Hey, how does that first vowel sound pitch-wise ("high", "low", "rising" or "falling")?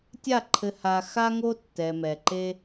falling